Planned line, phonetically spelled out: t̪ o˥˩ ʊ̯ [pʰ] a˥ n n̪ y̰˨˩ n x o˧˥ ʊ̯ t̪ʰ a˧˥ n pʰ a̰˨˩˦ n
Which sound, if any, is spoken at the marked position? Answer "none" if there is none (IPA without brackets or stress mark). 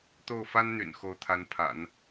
f